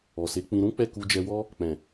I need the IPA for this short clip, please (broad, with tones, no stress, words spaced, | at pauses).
ɔ˨se˨˦ k͡pĩ˧ ɾũ˦k͡pɛ˦˨ ku˧d͡ʒɛ˧wɔ˦ | k͡pɛ̃˨